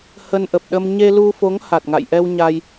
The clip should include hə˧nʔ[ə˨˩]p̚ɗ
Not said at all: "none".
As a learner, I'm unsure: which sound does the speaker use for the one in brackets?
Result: ə˨˩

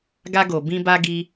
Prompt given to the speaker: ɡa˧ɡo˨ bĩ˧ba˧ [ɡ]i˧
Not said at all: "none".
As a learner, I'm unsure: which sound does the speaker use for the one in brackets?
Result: ɡ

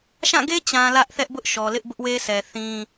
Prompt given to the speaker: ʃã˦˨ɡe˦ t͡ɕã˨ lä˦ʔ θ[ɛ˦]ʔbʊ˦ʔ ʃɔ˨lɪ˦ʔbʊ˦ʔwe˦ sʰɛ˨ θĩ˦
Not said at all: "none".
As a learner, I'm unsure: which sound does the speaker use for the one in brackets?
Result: ɛ˦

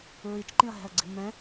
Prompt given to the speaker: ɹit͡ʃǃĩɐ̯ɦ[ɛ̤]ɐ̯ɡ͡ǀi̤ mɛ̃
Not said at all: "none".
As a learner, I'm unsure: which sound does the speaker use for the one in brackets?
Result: ɛ̤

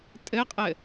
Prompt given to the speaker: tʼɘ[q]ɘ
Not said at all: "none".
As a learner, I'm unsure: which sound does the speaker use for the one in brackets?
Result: qʼ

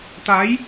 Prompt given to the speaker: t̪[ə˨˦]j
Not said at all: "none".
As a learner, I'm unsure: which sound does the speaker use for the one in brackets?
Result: a˨˦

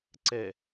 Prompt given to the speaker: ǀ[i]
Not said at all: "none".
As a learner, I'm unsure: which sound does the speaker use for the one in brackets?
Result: e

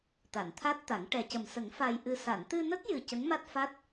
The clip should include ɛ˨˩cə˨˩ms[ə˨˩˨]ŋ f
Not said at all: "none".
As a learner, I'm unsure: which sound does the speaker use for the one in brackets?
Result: ə˨˩˦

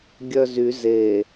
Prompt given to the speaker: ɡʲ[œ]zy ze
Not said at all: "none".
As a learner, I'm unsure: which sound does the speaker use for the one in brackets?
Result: œ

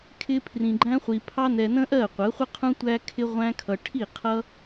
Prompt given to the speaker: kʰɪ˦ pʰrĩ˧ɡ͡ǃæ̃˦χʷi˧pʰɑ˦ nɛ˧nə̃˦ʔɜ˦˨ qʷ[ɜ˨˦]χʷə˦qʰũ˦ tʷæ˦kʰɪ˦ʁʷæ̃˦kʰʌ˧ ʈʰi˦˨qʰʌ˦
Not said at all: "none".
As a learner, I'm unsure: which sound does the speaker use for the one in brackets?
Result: ɜ˨˦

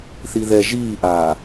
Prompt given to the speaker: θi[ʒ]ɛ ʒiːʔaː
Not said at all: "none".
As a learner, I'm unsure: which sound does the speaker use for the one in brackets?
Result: ð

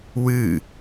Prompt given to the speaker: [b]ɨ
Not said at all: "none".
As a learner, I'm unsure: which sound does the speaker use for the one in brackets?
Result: w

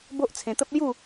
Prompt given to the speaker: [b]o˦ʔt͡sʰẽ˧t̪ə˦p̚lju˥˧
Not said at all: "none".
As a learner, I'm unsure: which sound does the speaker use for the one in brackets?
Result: b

